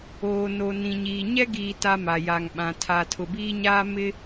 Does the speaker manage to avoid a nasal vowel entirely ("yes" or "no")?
no